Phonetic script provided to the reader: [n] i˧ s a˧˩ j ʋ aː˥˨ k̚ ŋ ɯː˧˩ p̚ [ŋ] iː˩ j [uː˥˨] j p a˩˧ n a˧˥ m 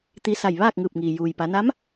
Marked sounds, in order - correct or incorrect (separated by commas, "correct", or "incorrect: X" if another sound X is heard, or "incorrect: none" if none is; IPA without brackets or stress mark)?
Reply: incorrect: t̪, correct, incorrect: uː˩